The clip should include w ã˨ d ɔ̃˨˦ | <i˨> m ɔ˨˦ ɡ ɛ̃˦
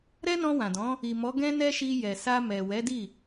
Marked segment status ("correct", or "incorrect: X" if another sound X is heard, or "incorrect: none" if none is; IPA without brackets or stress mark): correct